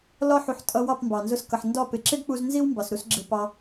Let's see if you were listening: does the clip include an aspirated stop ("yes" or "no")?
no